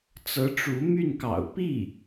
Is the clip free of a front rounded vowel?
no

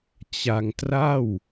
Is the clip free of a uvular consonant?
yes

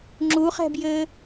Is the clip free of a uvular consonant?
no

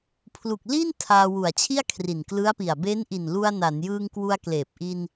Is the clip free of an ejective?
yes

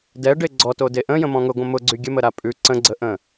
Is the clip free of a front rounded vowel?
no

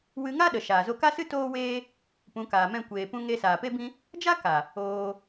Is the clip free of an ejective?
yes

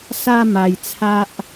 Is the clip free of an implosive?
yes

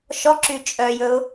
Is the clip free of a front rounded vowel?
no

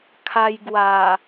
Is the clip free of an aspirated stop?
no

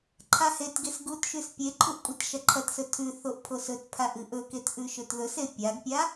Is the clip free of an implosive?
yes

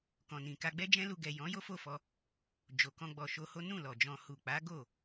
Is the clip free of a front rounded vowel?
yes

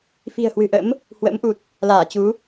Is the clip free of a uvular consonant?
yes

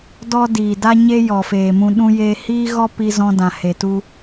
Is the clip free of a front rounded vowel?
yes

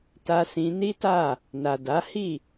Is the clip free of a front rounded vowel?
yes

